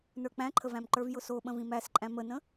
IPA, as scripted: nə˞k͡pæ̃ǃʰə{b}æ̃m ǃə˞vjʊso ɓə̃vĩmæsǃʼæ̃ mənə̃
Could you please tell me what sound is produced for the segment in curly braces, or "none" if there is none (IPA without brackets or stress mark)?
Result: v